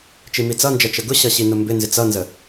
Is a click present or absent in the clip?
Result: absent